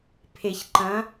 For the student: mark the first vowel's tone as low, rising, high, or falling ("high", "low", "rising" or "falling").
low